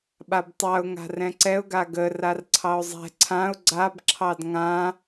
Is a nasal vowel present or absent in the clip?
present